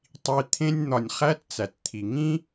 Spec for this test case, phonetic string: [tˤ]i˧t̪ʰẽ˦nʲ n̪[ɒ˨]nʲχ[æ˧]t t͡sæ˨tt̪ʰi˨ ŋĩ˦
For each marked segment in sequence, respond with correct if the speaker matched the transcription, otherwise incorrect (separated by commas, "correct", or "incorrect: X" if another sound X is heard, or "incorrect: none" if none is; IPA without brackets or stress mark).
correct, correct, correct